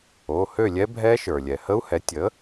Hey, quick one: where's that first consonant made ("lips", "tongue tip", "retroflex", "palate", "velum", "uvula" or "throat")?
throat